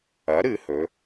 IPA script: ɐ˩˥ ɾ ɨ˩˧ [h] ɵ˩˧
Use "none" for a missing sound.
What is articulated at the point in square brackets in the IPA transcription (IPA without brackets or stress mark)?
h